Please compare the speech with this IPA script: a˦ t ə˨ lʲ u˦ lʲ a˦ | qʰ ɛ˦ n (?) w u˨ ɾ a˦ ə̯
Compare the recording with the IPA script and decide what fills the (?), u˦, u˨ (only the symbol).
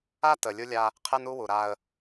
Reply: u˦